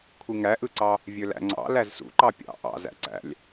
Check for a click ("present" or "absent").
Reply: present